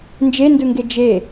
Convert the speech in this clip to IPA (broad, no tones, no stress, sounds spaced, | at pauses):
n d͡ʒ e n d ɯ ŋ ɡ e d͡ʒ e